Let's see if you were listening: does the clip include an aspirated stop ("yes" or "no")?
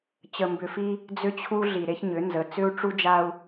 yes